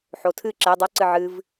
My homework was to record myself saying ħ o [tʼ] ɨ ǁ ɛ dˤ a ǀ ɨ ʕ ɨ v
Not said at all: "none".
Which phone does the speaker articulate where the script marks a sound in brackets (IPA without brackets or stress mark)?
tʰ